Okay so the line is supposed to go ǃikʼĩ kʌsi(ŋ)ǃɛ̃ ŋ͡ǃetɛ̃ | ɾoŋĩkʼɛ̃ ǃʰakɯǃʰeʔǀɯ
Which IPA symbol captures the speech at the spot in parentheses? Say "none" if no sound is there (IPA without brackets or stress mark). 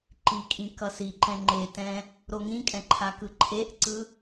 none